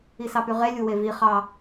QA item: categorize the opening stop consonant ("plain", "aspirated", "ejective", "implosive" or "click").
plain